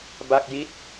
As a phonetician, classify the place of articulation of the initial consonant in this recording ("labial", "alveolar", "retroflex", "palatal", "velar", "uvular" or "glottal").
labial